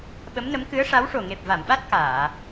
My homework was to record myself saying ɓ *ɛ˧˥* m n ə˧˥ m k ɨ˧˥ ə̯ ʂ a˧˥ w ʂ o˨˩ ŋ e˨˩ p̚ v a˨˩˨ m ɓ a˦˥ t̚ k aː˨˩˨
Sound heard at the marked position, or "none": ə˧˥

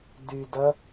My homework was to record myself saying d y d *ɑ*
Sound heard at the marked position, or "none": ɐ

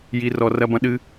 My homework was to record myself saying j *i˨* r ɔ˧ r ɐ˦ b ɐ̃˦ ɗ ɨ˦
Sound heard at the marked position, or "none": i˧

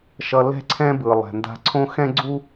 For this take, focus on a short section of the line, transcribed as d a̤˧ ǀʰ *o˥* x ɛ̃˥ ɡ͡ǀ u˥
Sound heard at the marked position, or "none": õ˥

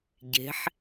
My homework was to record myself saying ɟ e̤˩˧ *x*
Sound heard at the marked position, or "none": ħ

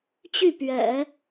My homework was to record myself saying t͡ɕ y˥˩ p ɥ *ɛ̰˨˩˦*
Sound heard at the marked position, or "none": ɛ̰˨˩˦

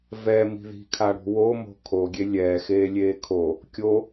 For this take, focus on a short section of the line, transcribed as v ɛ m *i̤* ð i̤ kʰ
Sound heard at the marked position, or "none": i̤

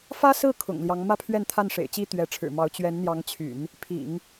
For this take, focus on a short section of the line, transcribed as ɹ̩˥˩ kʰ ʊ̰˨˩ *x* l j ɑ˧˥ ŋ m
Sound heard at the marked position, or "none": ŋ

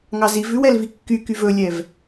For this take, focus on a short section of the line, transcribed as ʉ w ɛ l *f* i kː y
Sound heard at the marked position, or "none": v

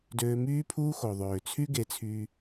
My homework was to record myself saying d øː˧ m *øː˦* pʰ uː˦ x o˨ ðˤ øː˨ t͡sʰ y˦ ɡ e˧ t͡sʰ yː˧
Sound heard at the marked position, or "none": yː˦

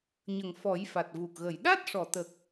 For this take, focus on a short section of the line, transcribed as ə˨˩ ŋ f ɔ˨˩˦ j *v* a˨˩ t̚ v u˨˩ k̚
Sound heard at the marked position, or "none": f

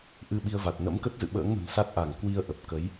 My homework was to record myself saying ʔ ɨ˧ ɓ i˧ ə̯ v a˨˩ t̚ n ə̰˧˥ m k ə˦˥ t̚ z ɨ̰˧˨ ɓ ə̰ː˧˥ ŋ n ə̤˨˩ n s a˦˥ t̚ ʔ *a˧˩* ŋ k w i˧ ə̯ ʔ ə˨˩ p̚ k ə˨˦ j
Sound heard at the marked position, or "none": a˧˩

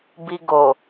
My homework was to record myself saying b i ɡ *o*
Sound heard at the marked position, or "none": o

